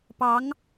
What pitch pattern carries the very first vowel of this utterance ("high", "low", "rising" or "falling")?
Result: rising